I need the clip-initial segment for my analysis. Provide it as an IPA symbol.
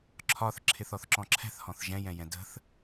ǁʰ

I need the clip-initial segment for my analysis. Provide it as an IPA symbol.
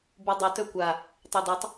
b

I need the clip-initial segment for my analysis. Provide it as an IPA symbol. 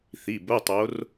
θ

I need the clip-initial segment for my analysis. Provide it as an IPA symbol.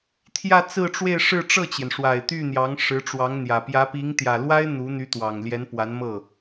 t̪ʰ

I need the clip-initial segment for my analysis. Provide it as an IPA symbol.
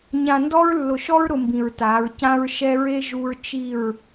ɲ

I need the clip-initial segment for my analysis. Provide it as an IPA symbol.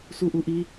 s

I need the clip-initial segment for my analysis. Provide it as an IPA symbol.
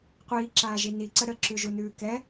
qʷ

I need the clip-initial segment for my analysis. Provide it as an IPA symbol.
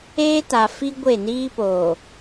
eː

